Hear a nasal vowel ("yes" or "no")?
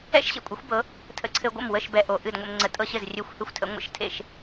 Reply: no